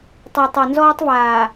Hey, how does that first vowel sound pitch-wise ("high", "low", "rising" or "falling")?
low